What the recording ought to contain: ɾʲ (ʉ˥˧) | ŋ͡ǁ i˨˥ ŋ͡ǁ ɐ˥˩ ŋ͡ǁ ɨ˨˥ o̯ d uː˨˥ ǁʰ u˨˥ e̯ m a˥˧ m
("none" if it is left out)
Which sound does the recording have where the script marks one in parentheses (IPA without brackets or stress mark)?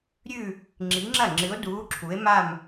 ʉ˥˧